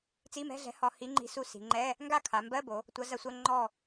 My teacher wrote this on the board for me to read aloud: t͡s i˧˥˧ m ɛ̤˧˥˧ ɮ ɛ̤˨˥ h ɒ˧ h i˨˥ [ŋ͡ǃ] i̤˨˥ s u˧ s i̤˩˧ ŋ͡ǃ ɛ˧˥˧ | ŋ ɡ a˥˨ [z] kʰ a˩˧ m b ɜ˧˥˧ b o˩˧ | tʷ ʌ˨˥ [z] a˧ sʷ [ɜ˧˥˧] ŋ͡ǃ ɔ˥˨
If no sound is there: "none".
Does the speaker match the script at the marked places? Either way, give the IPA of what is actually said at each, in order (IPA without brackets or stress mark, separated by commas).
ŋ͡ǃ, none, z, ɜ˧˥˧